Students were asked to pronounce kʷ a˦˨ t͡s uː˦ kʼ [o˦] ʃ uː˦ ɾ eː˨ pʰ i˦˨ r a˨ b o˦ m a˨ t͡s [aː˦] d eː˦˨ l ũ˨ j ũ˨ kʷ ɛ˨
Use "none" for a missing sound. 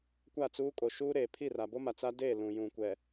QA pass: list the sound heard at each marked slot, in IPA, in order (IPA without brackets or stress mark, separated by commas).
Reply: o˨, a˦